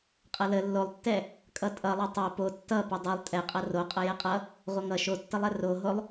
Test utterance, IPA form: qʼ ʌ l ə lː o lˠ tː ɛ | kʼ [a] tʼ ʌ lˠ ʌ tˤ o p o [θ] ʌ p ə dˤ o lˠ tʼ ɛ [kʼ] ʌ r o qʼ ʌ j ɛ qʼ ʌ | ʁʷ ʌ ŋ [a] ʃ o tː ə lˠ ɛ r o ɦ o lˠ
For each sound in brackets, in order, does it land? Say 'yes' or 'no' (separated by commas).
no, no, no, no